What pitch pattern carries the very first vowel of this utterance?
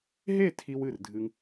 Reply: falling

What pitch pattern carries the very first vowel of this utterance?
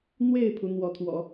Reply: falling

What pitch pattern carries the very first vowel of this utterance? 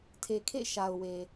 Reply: low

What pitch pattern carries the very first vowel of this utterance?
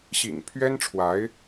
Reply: low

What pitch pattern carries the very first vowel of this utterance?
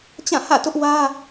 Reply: falling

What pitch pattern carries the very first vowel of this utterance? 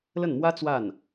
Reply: falling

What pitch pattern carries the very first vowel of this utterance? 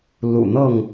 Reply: low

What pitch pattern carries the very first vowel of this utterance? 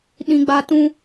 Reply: high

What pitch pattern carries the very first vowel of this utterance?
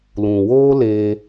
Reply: low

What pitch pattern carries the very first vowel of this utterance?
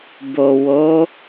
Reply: low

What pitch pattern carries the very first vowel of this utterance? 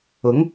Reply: rising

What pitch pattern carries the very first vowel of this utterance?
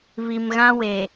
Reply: low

